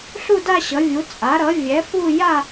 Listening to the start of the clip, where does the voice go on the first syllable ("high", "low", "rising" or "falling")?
falling